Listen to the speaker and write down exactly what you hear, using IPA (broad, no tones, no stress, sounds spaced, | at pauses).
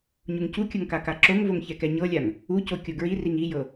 ɲ u ŋ c u kʲ ɤ ŋ k a k a ǁ o ŋ v o ŋ ç ɛ k ɛ ɲ ɤ lʲ a ŋ | u c o kʲ o ɡ ɹ i r i ŋ i j ɤ